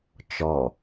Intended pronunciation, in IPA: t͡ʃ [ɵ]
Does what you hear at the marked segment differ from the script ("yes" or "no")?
yes